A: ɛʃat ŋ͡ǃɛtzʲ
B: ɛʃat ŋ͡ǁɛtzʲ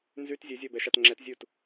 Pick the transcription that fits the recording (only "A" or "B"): B